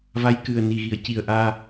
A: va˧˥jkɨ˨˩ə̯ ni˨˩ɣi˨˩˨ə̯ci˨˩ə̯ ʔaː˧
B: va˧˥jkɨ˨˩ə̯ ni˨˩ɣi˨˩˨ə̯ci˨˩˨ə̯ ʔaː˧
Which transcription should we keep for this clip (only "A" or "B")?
A